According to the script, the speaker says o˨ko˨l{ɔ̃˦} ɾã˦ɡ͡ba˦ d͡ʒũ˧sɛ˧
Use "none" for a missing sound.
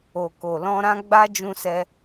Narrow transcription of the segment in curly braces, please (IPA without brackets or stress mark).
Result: ɔ̃˧